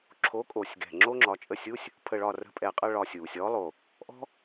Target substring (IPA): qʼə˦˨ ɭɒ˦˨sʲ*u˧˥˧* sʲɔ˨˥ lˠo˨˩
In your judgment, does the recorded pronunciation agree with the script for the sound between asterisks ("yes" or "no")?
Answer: no